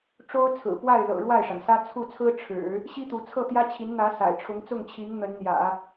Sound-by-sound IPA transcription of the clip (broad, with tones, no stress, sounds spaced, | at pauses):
ʈ͡ʂ o˥ ʊ̯ t͡sʰ ɹ̩˨˩ p w a˥˩ ɪ̯ l ɤ̰˨˩ ɻ w a˥˩ ɪ̯ ʂ a˩ n s ä˥ t͡sʰ u˥˩ t͡sʰ ɹ̩˥ ʈ͡ʂʰ ɻ̩˨˩˦ | ɕ i˥ t̪ u˧˥ t͡sʰ ɤ˥˩ t̪ j ä˥ t͡ɕʰ i˧˥ n n̪ ä˧˥ s a̰˨˩ ɪ̯ ʈ͡ʂʰ ʊ˧˥ ŋ t͡s ʊ˥˩ ŋ t͡ɕʰ i˧˥ ŋ n̪ ə˧˥ n n̪ j ä̰˨˩˦